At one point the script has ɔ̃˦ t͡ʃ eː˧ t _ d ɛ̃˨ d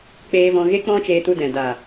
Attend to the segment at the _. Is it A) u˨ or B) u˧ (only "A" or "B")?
B